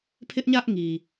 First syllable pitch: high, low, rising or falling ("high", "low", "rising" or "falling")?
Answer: high